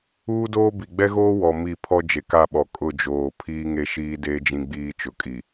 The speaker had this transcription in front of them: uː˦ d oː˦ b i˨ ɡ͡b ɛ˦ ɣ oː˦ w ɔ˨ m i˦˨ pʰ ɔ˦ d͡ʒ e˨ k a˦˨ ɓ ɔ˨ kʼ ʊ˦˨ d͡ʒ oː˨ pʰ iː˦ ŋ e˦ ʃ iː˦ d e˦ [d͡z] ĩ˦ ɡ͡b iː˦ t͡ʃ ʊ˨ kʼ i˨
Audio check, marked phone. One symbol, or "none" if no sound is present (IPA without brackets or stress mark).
d͡ʒ